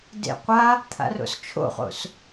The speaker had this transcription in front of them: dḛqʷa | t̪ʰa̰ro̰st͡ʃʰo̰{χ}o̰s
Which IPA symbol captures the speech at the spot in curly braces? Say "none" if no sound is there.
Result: χ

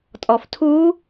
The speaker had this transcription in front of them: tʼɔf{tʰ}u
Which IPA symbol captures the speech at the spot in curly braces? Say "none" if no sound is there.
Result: tʰ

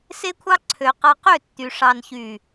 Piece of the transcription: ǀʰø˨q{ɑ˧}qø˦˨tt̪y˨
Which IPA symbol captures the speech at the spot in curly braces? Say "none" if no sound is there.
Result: ɑ˧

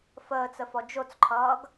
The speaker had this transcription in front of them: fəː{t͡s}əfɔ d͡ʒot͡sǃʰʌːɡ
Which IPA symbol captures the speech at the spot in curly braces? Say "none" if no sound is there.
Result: t͡s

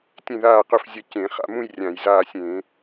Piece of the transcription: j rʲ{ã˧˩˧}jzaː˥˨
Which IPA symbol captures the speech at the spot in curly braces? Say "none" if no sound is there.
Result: ã˧˩˧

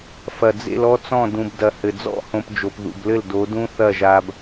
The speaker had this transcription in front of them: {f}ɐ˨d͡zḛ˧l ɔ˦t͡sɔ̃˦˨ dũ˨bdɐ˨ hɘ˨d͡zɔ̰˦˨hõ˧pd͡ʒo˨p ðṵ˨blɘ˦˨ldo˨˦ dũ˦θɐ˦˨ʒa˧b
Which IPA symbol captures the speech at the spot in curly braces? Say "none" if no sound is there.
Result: f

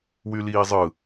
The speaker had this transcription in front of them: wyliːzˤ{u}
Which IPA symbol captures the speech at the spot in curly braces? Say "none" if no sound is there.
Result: ɯ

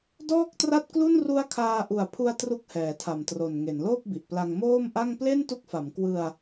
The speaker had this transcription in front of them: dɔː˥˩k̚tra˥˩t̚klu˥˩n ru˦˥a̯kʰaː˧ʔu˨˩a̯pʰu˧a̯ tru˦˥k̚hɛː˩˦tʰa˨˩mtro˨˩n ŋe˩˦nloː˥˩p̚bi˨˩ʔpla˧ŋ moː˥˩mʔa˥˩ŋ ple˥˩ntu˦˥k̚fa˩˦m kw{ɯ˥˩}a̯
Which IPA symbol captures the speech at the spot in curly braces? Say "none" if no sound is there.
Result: ɯ˧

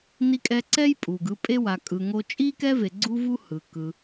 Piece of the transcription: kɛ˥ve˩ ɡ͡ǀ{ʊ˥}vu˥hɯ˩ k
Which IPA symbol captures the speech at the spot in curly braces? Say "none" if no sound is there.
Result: u˥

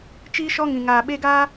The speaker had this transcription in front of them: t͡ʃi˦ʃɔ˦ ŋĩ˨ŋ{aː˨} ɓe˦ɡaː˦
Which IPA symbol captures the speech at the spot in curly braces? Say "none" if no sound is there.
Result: aː˨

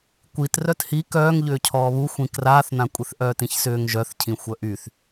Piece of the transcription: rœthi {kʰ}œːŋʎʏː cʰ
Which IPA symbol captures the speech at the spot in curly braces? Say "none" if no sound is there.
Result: k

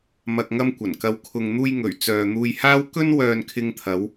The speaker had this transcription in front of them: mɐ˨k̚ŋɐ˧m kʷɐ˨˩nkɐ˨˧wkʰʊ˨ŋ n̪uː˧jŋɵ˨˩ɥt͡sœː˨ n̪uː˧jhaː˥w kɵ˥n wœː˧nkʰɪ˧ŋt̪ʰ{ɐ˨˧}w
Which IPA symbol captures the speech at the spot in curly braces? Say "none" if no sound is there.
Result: ɐ˨˧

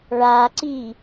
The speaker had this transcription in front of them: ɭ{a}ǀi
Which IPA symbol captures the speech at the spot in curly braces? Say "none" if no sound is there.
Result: a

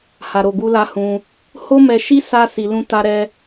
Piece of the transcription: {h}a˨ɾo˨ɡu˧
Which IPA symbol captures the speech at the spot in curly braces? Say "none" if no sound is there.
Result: h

